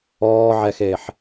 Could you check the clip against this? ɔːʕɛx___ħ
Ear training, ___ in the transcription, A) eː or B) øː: A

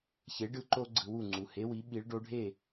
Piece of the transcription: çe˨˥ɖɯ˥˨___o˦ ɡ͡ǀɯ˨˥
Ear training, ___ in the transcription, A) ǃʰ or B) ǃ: B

